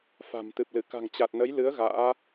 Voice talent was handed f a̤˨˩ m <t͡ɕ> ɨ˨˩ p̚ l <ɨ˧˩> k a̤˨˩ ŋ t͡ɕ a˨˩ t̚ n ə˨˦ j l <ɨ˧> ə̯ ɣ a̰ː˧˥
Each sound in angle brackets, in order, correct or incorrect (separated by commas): incorrect, correct, incorrect